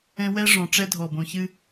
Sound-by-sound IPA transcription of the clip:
ɛ̃˦ w ɛ˦ ʐ ɔ̃˨ ʈ͡ʂ ɛ˦ dʱ ɔ˨ b õ˨ ç ɨ˦

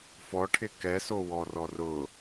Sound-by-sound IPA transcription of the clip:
f ɔ ʈʰ ɪ k ɛ s o w ɔ r ɔ r ʊ

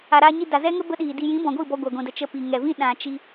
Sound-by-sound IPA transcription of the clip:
a˨ ɾ aː˧ ɲ i˧ d a˨ z ɛ˦ ŋ ə˦ b ə˦ ɗ iː˨ d i˧ j ĩ˨˦ b ɔ̃˨ ɡʷ i˦˨ b ɔ˧ ɡʷ a˨ ɡʷ ĩ˨ d ə˨ t͡ʃ ə˧ p i˨ ŋ ɛ˨ v ĩ˦ ɗ ã˨ t͡ʃ i˧

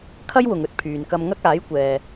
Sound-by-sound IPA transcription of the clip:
kʰ ɐ˥ j w ʊ˨ ŋ ɵ˧ t̚ pʰ yː˨ n k ɐ˧ m ŋ ɐ˥ k̚ aː˨˥ j kʷ ɛː˨

